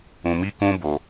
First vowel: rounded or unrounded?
rounded